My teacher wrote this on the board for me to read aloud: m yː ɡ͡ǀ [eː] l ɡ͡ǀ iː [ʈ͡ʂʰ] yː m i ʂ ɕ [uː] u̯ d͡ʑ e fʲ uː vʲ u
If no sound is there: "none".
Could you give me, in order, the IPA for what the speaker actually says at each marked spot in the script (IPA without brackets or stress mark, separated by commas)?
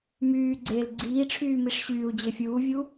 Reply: eː, ʈ͡ʂʰ, yː